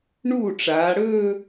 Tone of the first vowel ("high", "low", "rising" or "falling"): falling